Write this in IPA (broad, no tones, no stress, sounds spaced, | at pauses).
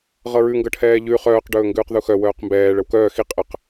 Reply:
ʁ ɤ ɹ ʉ ŋ ɡ ɤ ʈʰ ɛː ʎ ʉ χ œː q ɖ ɵː ŋ ɡ ʉː q ð u x œ w œː q m b ɛː ɭ ə w k œː x i qʼ ə q